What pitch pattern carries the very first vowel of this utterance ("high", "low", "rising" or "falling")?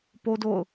high